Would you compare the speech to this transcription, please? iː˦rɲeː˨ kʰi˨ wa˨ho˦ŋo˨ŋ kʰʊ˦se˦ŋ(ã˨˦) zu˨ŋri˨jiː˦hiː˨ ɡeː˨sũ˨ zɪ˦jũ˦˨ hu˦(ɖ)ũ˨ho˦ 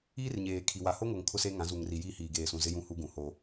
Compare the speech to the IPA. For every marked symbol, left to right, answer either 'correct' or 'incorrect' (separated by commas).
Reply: correct, incorrect